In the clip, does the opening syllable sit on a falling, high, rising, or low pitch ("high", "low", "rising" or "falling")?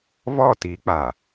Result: falling